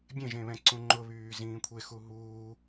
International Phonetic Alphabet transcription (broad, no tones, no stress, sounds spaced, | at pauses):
bʲ ẽ ʒ ẽ β ɛ̃ ǀ ũ ŋ͡ǃ ʊ β yː z ĩː kʷʰ e x u ɦ uː